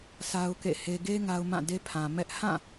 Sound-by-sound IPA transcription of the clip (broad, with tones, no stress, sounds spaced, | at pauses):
sʰ a˦ ʊ̯ k ḛ˦˨ h e˦ ɡ e˦ ŋ a˦ ʊ̯ m ã˦˨ d e˦ pʰ ã˨ m ɛ˦ ʔ h ã˦˨